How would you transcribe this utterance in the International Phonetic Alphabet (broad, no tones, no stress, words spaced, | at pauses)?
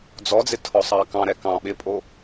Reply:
d͡zɔd͡zɪ tʰɔsˤɑkɑ̃ɾɛ kɑ̃ ɓɪpʼo